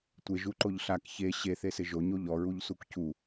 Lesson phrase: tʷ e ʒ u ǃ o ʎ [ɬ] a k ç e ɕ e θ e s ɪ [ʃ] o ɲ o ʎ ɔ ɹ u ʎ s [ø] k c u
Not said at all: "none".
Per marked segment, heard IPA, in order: ɬ, ʒ, u

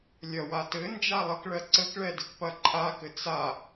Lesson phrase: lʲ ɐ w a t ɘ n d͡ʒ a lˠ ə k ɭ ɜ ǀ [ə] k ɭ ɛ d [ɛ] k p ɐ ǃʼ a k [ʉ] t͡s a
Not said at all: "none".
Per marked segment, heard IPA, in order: ə, ɘ, ɘ

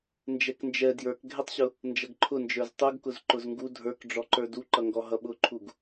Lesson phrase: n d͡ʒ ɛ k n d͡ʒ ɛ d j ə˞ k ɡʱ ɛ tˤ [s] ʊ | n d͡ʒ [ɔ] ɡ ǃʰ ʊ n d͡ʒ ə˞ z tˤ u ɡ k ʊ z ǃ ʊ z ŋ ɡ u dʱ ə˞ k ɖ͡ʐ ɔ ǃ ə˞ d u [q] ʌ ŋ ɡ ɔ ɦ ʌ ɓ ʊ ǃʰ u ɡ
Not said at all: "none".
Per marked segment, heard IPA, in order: ɕ, ʌ, ǃ

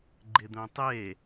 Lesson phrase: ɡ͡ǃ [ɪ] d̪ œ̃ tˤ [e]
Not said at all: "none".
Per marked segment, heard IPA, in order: ɪ, e

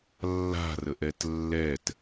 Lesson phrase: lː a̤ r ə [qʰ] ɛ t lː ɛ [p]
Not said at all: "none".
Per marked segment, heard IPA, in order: ʔ, t

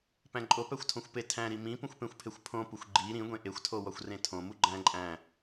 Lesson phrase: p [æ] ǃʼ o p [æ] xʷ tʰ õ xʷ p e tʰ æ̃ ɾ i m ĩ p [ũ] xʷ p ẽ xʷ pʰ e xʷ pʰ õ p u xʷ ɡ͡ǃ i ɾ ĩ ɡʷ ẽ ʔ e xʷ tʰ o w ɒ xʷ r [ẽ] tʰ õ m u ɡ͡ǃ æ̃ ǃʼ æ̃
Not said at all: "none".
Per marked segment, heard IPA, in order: æ̃, æ, ũ, ẽ

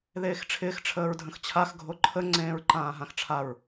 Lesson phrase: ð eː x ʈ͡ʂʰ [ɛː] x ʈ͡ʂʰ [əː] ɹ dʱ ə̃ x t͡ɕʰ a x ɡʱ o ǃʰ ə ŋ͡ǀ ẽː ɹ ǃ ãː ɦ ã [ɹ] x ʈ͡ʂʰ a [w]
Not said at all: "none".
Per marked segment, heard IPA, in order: ɪː, əː, none, ɹ

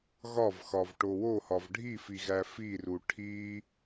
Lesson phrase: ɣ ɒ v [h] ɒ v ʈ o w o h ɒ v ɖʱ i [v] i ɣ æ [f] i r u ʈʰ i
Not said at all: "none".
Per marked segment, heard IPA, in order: x, f, f

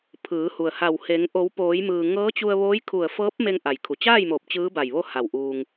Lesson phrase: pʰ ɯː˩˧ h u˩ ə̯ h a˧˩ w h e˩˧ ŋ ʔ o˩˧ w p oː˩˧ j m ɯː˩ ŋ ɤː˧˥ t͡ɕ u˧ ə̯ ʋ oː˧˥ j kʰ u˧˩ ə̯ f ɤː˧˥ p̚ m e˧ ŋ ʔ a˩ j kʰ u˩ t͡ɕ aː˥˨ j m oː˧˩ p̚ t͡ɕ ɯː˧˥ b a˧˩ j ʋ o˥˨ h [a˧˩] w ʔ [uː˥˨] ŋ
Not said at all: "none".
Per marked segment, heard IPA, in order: a˧˩, uː˧

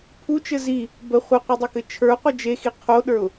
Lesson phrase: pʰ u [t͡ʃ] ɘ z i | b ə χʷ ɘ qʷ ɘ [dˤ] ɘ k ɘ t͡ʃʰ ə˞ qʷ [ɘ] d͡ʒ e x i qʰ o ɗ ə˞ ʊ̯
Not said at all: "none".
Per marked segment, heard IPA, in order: t͡ʃ, dˤ, ɘ

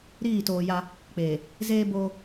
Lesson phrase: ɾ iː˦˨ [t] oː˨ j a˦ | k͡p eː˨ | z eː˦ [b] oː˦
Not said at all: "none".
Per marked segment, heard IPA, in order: t, b

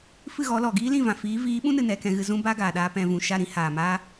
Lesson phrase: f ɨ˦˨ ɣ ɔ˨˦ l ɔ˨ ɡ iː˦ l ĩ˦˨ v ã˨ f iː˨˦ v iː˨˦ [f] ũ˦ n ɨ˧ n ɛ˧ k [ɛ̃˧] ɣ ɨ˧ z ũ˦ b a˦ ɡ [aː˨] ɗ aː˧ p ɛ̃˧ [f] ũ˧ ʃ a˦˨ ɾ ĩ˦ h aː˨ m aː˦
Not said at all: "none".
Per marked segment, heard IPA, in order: ɓ, ɛ̃˧, aː˨, v

